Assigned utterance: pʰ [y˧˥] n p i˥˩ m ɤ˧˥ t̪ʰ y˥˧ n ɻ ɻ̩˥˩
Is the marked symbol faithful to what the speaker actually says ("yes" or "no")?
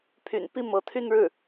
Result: no